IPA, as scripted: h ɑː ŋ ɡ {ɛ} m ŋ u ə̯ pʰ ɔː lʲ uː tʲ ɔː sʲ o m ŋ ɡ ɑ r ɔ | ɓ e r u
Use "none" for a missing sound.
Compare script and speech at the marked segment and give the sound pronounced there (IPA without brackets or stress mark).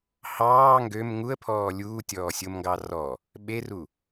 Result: ø